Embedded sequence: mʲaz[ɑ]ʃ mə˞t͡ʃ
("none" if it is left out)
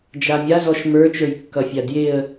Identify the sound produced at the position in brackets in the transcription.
ɔ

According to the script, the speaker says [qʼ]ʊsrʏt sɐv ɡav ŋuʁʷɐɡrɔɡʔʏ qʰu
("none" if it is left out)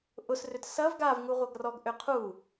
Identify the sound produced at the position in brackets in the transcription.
ʔ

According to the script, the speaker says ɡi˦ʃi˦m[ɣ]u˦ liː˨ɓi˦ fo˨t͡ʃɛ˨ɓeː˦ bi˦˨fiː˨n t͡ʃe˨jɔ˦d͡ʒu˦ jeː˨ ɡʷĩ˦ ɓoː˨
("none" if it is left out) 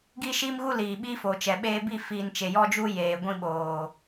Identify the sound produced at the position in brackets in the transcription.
ɣ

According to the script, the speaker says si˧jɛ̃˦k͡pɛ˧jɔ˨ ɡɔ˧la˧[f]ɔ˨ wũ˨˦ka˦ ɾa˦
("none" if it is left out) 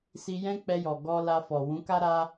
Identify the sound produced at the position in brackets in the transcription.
f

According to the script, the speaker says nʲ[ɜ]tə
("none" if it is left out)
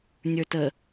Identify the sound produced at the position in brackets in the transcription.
ə˞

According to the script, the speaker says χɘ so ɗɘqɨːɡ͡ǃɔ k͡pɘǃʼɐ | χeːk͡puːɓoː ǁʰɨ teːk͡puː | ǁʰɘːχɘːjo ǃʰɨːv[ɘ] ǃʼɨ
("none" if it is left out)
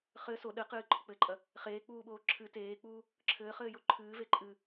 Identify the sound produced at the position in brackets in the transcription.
e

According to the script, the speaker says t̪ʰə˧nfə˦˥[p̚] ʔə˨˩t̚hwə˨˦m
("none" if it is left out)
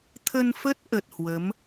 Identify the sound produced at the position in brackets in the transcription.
t̚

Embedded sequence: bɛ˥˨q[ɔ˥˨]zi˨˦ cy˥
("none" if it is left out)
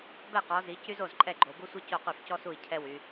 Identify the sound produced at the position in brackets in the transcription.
ɔ˨˦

